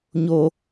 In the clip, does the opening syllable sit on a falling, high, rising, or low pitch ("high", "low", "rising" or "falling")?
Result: high